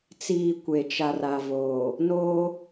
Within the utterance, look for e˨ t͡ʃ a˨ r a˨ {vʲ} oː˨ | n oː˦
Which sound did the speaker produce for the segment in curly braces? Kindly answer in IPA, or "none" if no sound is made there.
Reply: v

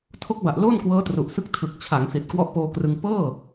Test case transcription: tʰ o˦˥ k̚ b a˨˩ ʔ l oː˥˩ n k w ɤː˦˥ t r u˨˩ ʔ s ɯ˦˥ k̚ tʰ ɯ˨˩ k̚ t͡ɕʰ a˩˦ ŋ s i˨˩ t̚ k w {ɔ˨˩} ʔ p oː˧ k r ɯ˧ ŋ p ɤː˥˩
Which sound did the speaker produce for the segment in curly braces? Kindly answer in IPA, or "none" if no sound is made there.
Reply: ɔ˦˥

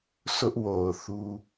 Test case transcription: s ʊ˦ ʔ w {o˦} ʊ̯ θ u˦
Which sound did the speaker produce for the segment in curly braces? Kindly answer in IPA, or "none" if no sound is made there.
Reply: o˨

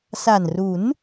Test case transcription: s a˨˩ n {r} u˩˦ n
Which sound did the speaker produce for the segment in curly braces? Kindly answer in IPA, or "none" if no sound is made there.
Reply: r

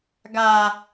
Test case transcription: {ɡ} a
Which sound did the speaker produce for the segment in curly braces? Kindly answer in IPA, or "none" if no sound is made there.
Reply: ɡ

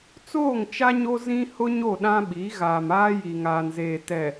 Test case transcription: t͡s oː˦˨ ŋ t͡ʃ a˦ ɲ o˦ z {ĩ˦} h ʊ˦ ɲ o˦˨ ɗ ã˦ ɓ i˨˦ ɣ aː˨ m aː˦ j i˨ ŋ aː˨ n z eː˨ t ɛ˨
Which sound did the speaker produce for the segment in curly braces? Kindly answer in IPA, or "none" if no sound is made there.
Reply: ĩ˦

